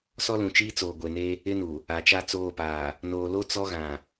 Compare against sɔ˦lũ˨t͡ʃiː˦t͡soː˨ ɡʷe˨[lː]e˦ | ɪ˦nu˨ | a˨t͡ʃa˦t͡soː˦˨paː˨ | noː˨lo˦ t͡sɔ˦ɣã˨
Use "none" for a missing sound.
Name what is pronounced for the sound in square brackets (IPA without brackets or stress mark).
n